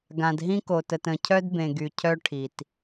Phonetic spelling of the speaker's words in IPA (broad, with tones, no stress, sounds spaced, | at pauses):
ɡ ã˨ d ɦ ĩ˦ k o˨ t ə˨ t ə̃˨ cʰ œ˦ d b ẽ˨ ɡ y˨ cʰ œ˦ ʈʰ i˨ t